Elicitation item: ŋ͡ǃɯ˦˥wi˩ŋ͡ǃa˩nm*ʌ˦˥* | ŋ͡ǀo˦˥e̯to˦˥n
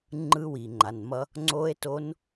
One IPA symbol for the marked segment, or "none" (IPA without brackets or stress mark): ʌ˦˥